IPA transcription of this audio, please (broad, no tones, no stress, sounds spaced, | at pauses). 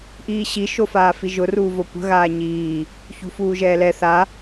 ʔ iː ɕ i ʃ o f aː f i ʒ ʊ r uː v o kʷ ə̤ ɣ aː ɲ iː | ç ṳ f uː ʒ ɛː l ɛ θ a